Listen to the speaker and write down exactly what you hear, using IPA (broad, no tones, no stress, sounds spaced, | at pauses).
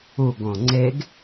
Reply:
u ɡ õ ŋ͡ǀ e ɡ